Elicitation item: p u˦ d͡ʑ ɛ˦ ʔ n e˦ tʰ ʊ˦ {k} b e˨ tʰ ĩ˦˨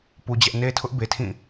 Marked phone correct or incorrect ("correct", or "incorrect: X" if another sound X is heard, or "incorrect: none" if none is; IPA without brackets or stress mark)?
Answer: incorrect: ʔ